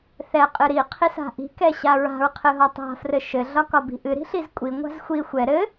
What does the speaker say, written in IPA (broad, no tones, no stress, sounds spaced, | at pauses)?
θ ɛ qʼ ɨ ɾ i qʰ i s a̤ ʔ i̤ k ɛ ɕ a ɹ a̤ ɹ qʰ ɨ ɦ ɒ tˤ a̤ f r ɘ ʃ ɘ ɮ ɒ k ɒ b i̤ ʔ ɨ ɾ i̤ ɬ i z kʷʼ i ŋʷ a̤ z xʷ i xʷ ɛ ɾ ɘ